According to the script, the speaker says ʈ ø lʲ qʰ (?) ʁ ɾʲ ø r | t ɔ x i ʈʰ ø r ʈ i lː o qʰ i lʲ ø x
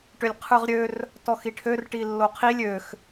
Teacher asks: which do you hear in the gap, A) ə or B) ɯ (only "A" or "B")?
B